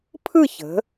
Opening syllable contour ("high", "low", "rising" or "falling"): falling